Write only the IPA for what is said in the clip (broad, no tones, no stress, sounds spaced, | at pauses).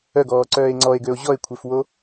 œ ɡ ɔː ǀ œː e̯ ŋ͡ǀ ɔ e̯ ɡ ø o̯ ʑ ɔ e̯ kʷʰ e f w o